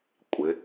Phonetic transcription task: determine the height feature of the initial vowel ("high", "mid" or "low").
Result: high